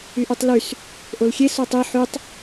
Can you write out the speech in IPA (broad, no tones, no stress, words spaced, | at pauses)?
yʔytˤlys | ʔolxʲe sotˤi ħytˤ